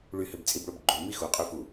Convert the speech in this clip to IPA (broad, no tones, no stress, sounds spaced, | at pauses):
ɭ y h ø b t͡sʼ i b ɭ o b ɡ͡ǃ o m i x u qʼ y f u